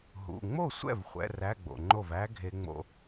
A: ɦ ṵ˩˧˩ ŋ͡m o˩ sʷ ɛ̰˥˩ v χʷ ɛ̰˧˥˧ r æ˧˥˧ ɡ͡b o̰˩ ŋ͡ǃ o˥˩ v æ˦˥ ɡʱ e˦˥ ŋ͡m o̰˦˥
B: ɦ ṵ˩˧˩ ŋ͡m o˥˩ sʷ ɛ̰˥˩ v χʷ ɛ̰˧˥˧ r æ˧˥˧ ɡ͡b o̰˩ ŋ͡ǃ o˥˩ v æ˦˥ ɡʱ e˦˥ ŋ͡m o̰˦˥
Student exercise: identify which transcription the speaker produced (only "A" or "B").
B